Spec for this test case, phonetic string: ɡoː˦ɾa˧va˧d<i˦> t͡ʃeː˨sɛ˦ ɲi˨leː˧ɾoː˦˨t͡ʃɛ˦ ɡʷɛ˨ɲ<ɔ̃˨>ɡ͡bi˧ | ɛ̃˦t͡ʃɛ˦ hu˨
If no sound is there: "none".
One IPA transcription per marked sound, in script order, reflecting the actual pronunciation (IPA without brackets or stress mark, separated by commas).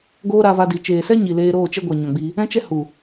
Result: i˨, ɔ̃˨